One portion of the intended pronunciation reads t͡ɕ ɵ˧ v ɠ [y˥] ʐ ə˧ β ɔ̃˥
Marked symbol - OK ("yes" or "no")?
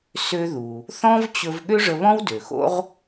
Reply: no